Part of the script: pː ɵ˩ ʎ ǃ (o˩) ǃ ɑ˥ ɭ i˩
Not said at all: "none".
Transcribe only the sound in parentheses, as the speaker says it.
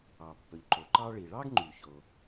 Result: o˩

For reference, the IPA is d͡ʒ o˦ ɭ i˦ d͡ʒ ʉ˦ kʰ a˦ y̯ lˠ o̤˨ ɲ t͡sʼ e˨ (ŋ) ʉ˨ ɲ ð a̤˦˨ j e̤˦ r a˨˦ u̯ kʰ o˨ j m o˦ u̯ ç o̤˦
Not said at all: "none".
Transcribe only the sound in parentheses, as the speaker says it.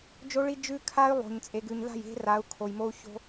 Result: ɡ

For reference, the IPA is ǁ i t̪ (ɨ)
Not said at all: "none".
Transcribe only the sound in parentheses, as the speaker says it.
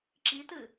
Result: ɨ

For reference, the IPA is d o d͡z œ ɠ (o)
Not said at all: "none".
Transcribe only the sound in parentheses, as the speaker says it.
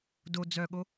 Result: o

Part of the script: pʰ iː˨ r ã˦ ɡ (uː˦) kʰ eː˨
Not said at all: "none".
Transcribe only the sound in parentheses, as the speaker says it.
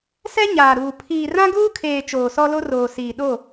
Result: uː˦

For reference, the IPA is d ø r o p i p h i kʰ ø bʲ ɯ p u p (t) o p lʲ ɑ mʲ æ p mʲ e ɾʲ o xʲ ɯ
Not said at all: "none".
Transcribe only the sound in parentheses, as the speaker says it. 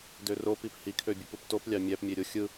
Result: t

